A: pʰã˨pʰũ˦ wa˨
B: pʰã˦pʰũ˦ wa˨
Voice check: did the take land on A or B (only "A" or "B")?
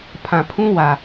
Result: A